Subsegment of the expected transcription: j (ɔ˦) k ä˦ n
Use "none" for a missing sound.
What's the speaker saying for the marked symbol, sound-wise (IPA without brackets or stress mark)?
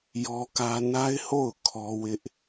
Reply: ɔ˦